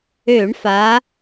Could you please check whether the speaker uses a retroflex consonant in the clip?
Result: yes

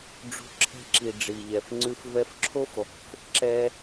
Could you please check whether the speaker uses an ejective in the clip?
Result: no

